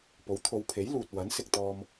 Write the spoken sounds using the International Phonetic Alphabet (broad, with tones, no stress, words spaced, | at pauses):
po˨˥wt̪ʰo˨˧wpʰe˨˥j luː˨t̚ wɐ˨˥nsɪ˧k̚t̪ɔː˧m